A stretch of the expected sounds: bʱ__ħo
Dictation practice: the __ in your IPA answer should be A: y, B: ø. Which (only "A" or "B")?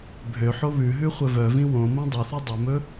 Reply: B